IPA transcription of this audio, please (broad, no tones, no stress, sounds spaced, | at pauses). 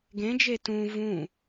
ɡ ẽ d͡ʒ e t ũ v ũ